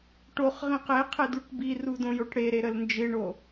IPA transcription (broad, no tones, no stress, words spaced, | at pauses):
ʈoχʁĩ qeqʰe duʈbiru dõjoʈɽeɾe ɾəlnd͡ʒɪɳo